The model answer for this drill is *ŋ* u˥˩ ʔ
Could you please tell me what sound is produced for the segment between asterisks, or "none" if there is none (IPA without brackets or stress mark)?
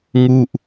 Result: ŋ